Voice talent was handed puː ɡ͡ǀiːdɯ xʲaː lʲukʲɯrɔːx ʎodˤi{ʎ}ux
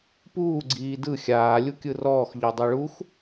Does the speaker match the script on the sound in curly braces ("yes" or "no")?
no